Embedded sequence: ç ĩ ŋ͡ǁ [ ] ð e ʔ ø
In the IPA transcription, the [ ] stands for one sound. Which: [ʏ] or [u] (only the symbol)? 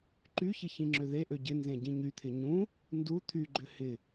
ʏ